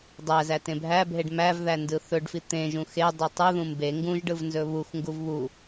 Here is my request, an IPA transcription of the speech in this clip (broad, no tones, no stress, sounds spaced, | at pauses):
dˤ æ z æ t ẽ bʱ æ bʱ e ɖ m æ v ð æ n d ɯ θ ɵ ɖ f i t̪ ẽ ʒ ũ x e dˤ i tˤ ɯ ð ũ m b e ŋ ɡ ũ ʒ ɖ ɯ v n z ɵ β u x ŋ ɡ u v β u